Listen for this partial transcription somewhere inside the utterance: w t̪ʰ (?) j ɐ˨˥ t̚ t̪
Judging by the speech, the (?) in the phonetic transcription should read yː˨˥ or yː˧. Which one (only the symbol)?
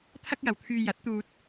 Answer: yː˧